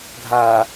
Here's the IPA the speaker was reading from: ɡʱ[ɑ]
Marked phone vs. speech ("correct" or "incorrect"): incorrect